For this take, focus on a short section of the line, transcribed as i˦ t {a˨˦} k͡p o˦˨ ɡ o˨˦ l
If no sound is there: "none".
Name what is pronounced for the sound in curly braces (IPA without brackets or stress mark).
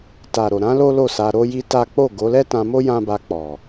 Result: a˦